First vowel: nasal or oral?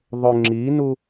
oral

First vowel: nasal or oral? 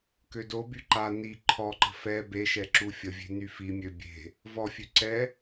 oral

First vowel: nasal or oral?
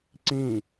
nasal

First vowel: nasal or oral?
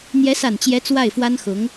oral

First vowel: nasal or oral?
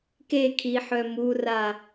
oral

